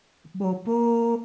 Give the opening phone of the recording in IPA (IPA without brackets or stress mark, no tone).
ɓ